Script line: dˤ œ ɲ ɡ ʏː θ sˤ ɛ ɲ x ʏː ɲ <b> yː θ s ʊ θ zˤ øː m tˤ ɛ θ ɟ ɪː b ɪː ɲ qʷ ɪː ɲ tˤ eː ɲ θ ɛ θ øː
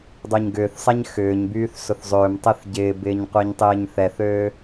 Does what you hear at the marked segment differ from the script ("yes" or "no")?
no